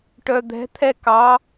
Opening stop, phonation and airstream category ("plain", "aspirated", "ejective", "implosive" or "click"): plain